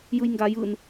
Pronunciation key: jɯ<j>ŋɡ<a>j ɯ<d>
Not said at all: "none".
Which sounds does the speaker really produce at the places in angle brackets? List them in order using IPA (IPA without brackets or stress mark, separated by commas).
j, a, n